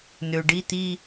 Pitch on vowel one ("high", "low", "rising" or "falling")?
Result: low